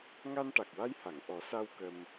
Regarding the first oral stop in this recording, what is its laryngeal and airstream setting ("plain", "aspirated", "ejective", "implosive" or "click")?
plain